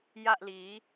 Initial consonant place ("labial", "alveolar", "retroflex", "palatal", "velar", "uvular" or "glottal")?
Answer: palatal